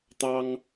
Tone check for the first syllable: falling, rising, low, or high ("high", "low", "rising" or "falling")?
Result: high